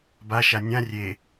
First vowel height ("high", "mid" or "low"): low